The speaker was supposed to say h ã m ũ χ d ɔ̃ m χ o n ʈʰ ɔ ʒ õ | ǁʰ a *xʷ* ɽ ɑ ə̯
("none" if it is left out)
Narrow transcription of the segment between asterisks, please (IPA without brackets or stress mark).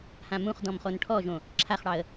χ